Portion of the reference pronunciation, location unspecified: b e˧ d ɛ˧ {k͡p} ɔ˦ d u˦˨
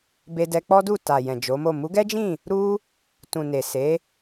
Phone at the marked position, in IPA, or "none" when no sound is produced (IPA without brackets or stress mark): k͡p